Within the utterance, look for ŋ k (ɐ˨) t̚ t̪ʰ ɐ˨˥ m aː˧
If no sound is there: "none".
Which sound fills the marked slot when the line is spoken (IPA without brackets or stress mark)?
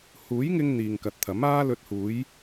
ɐ˨